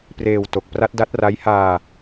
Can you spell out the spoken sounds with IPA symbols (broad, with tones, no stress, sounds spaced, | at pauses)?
p r eː˧ w t o˨˩ k̚ p r a˦˥ t̚ d a˦˥ t̚ r a˦˥ j h aː˧